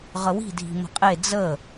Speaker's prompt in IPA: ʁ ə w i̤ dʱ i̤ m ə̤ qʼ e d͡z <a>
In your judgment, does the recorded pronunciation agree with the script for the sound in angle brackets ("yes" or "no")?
no